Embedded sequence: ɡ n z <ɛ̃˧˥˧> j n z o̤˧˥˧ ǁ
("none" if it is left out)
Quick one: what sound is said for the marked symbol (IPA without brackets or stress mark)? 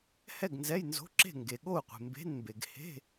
ɛ˧˥˧